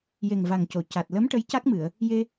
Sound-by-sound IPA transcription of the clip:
je˨˩ŋva˨˩ŋco˨˩˨ ca˨˩t̚ lə˧˥m ʈə˧˥jca˦˥k̚mɨ˨˩˨ə̯ | je˧

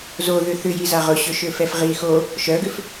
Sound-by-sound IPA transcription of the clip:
zo ðʏθʏjiza ʁʊɕøʃøfɛf ʁi xo | ʃœɡʏf

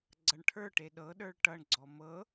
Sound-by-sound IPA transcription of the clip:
ɡ͡ǀʌɳʈʰə˞ʈe ɗɤɗə˞ɭ ʈʌɳɡ͡ǀɔ mɤ

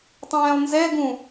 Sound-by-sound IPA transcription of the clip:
tˤɛ̃ːlˠnzɛɡũ

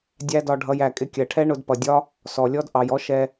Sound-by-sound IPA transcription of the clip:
dʲæ˦dɒ˧ ɖʱʌ˧j æ˨kʼɪ˧kʲɜ˨ʈʰɛ˦ ɳʊ˧dpʌ˨dʲɒ˦ | sɔ˨lʲɔ˦d ʔɑ˨jɔ˦ ʃɛ˧

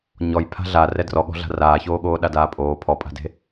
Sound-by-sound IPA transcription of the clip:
ɲɔj pʰa̤ɮa rɛdrɔɠɔ̤ɮa̤ raːçoːɠoː ɗadaːpʼoː pʰɔpʼa̤de̤

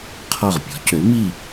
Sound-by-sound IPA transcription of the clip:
qʰɔ˧˩ʁpʲɔ̤˩˥cø˩˥ mi˥˨

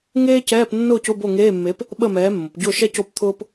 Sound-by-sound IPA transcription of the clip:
ŋeː˥cɛː˧˥˧p nːʊː˥˨cʊ˧˥˧ bo˥˨ŋeː˧˥˧mːe˨˥p | ɓə˥˨mɛː˨˥mːʊ˩˧p ɟʊː˥˨ʃɛ˥co˥˨p t̪ʰʊː˥p

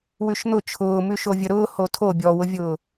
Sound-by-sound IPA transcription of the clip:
wʉʃn̪ʊ t͡ʃʰʊː mʉʃovʲəɾʊː hotʰo bʲɔwʊvʲʊː

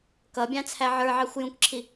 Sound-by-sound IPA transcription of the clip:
kʌbʲɑ̃t͡sʰæ ʕə˞ʕɑxʷ jũkǁʰi

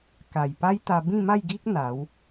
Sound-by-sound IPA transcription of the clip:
ka˨˩jpa˦jt̪a˧ bĩ˥˧ma˥˧jɡi˦k̚ n̪a˨˦w

